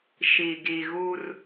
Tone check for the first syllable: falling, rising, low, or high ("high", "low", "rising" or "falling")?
low